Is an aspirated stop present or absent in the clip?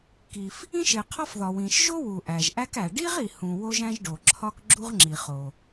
present